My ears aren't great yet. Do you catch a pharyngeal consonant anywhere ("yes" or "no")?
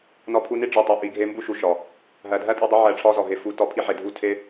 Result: yes